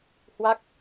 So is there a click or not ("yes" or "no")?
no